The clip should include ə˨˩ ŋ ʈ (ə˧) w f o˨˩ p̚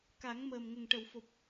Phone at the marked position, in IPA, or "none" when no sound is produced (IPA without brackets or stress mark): ə˨˩˨